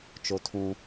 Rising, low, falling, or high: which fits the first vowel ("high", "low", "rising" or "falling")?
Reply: high